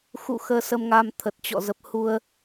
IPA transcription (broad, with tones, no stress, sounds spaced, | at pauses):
x ṵ˧˨ x əː˧ s ə˧ m ŋ aː˧ m t̪ʰ ə˨˩ t̚ t͡ɕ ɔ̰˧˨ z ə˨˩ p̚ h u˧ ə̯